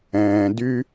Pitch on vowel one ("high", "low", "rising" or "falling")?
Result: low